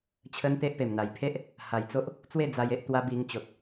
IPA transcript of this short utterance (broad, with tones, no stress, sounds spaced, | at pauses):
t͡ɕʰ ə˦ n t̪ e˦ ʔ p e˨˩ m n̪ a˨˩ j pʰ e˦ ʔ | h a˨˩ j t͡s o˦ ʔ | t͡s w e˥˧ d͡z a˧ j e˦ ʔ t̪ w a˦ b i˧ ŋ t͡ɕ o˨ t̚